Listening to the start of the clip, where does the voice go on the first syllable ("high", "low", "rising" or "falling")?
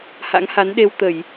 rising